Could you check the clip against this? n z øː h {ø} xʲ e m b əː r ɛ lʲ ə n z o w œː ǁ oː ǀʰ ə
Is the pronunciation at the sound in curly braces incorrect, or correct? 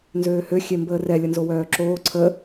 correct